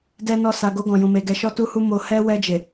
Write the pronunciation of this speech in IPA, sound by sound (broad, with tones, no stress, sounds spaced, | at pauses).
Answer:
d ɛ˦ n ɔ˦˨ s a˨ ɡ o˧ ɡ ɔ̃˨ j ũ˨ m e˨ ɡ ɛ˨ ʃ ɔ˧ t u˧ h u˧ m o˧ h ɛ˦ w ɛ˧ d͡ʒ e˨